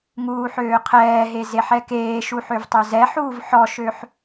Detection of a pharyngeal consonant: present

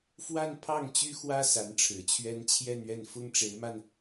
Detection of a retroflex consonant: present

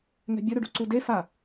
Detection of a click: present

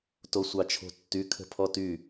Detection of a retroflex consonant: absent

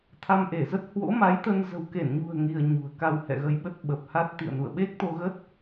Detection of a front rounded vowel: absent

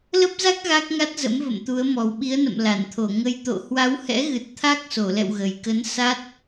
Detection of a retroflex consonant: absent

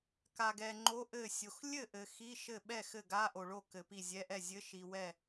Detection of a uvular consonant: absent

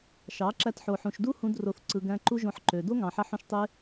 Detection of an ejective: absent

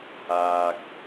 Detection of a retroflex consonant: absent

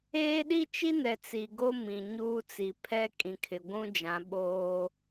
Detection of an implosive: present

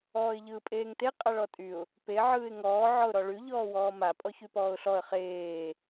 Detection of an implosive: absent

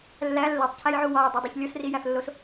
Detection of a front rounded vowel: absent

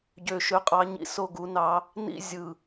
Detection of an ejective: present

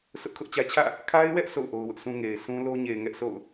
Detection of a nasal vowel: present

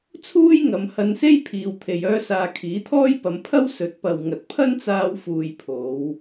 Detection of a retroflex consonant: absent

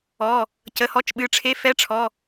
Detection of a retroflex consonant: present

